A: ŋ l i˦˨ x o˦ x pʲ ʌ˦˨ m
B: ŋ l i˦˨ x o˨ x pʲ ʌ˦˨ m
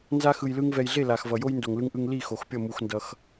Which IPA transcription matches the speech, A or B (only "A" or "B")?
B